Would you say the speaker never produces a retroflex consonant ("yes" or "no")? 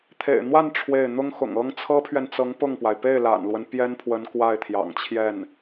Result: no